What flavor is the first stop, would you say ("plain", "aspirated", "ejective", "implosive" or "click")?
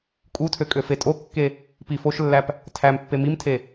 ejective